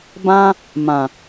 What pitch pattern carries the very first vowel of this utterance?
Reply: high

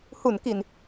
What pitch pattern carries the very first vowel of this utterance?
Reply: low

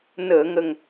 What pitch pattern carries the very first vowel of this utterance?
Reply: low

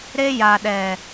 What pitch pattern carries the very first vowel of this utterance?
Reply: high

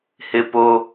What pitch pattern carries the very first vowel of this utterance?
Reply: high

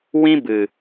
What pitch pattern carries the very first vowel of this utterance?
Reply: high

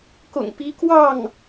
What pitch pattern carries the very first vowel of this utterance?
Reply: low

